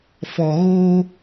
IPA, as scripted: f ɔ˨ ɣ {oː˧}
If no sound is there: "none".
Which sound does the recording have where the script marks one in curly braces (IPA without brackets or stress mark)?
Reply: oː˧